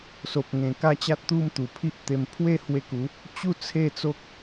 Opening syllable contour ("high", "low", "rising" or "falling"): low